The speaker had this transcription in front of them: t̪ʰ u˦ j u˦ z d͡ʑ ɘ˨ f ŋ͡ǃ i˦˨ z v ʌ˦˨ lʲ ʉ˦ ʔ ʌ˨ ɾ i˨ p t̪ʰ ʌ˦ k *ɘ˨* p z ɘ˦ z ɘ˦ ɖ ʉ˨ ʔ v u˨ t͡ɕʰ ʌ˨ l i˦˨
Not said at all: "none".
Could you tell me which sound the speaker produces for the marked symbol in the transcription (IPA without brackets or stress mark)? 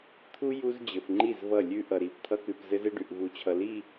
ʉ˨